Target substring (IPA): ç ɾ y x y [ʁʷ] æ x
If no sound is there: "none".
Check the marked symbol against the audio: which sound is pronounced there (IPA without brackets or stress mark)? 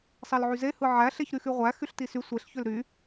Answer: ʁʷ